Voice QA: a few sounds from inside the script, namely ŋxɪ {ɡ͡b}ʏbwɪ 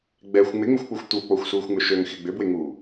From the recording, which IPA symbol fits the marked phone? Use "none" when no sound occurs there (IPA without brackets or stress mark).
ɡ͡b